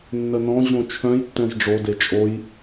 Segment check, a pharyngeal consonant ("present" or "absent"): absent